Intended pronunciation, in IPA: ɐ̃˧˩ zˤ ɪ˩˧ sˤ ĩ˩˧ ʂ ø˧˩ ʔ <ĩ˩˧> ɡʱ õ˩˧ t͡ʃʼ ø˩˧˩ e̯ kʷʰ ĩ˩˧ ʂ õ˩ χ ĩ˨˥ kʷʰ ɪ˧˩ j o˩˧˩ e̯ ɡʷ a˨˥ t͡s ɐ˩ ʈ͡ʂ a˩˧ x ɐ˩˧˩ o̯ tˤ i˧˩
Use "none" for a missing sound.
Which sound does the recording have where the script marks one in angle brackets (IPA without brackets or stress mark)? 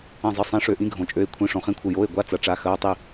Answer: ĩ˨˥